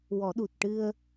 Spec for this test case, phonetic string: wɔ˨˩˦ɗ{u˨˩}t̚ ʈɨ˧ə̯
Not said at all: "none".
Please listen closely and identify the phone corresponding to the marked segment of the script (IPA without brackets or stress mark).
u˨˩